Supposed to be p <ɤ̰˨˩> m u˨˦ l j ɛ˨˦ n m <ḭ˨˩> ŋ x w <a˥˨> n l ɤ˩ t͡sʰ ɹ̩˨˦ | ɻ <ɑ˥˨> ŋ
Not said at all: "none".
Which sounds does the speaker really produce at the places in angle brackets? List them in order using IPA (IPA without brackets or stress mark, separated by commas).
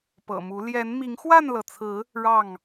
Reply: ɤ̰˨˩, i˨˦, a˥˨, ɑ˥˨